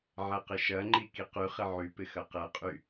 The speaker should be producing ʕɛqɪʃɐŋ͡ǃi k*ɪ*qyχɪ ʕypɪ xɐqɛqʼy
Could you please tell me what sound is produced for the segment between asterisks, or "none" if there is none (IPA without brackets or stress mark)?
i